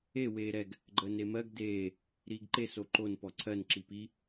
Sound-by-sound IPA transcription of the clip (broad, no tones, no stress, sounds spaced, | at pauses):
e w eː ɾ ɛ ɡ | ɡ͡ǃ əː n e m ɜ ɡ d eː | ɾ iː ɡ ǃ e s o ǃ o n p ɔ ǀʰ ɜ n ǁ i p i